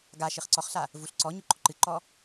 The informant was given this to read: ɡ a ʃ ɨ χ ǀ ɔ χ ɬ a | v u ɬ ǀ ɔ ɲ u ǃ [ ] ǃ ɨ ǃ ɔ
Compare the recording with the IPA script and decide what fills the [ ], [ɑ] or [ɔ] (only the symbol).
ɔ